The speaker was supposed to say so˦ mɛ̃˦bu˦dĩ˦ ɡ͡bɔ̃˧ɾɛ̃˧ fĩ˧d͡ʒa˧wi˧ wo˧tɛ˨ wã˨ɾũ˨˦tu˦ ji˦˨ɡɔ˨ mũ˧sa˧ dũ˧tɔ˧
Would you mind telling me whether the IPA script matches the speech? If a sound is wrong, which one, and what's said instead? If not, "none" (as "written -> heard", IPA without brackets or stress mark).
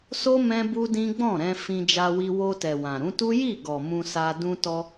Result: ɔ̃˧ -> ɔ̃˦˨